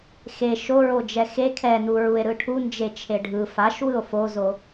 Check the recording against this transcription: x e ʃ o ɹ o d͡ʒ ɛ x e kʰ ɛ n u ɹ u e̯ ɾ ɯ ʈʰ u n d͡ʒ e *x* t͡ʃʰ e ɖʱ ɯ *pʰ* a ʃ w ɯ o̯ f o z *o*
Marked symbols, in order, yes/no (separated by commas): no, no, yes